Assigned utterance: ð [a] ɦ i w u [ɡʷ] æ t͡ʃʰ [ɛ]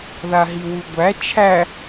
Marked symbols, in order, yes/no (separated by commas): yes, yes, no